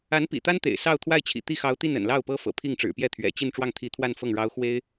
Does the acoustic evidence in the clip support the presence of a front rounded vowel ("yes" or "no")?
no